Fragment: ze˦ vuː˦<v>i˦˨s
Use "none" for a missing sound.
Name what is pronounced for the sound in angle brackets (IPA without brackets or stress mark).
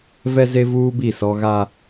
b